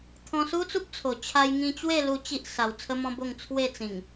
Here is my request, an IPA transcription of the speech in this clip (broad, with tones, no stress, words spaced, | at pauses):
t̪ʰɔ̃˧su˦t͡su˦p̚t͡sʰo˨˩ t͡ɕʰa˧jŋĩ˧t͡ɕwe˥˧lu˧ t͡ɕi˦ʔ sa˧w t͡sʰə˦mɔ̃˦bo˥˧ŋ t͡sʰwe˥˧t͡sĩ˨˩ŋ